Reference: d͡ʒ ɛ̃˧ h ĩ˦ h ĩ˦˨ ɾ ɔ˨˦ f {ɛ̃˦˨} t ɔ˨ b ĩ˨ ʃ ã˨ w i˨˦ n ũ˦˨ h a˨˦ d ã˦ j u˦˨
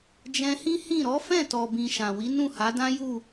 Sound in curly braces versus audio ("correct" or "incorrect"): correct